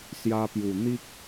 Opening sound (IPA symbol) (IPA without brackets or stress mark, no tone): s